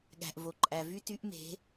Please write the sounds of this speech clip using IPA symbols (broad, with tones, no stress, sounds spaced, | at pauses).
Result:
ɠ æ̤˩ ʔ v o˩ ǃʼ æ˩ v y˥ t y˧˥ ʔ m e̤˩˧